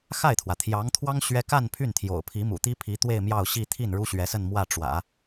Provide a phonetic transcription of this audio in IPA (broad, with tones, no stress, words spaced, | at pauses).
xa˥˩ɪ̯t̪ʰwä˩t̪ʰjɑ˧˥ŋt̪ʰwɑ˥ŋ ɕɥɛ˥ ka˥˧n pʰy˥˩nt̪ʰjo̰˨˩ʊ̯pʰi˧˥ mṵ˨˩ t̪i˥pʰi˧˥t̪we˥˧ɪ̯ mjɑ˥˧ʊ̯ɕi˥˧ t̪ʰi˥˩n ɻu˥ɕɥɛ˧˥sə˥˧nmwä˥˩ ʈ͡ʂwä̰˨˩˦